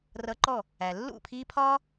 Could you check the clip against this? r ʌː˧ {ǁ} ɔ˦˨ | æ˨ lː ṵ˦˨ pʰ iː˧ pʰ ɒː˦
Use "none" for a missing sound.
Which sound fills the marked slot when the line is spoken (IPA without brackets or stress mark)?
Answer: ǃ